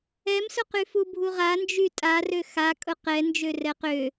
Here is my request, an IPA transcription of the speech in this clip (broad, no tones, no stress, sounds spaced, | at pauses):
ɛ m s ʊ q y f u bʱ u ʁ a n d͡ʒ y tʼ a r ø x a kʼ ʊ q ɛ n d͡ʒ ø r ɛ q ø